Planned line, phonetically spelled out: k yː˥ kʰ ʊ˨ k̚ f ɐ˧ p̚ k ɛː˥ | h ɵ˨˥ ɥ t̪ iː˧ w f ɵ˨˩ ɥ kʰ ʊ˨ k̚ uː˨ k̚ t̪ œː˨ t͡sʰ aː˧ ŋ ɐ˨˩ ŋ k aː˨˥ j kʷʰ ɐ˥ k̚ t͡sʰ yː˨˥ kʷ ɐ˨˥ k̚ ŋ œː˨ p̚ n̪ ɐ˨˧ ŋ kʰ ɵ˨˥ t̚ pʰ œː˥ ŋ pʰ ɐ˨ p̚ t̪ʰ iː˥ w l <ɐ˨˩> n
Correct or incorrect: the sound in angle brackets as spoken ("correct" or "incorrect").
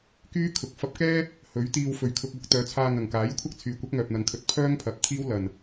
correct